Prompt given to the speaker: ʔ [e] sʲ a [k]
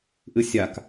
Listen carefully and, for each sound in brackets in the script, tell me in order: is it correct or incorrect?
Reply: incorrect, correct

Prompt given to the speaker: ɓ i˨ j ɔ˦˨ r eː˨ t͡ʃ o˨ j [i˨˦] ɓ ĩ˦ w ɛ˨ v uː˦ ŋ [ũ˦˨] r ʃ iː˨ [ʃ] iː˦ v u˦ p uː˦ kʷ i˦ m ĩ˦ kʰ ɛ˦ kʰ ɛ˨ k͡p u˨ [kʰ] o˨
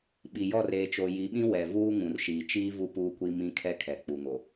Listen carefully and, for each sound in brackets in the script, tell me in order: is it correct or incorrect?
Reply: correct, incorrect, incorrect, incorrect

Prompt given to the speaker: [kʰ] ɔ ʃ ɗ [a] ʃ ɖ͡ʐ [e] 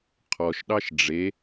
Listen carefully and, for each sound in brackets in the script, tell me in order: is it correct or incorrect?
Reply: incorrect, incorrect, correct

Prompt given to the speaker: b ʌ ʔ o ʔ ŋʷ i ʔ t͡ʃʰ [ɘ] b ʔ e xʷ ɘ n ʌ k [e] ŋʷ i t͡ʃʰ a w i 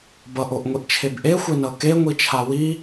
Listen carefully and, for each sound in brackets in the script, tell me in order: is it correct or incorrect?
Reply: incorrect, correct

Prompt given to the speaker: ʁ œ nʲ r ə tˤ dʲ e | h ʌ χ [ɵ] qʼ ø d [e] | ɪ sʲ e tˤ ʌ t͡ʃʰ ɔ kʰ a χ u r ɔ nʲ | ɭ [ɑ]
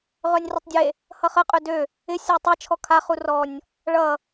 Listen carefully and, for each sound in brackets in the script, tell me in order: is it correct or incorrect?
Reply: incorrect, incorrect, incorrect

